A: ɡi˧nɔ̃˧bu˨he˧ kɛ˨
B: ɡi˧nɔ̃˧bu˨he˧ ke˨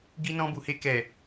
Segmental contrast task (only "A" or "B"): A